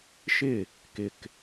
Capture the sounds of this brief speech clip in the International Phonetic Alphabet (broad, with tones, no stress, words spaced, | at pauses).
ʃɪ˥˨ | kɪ˨k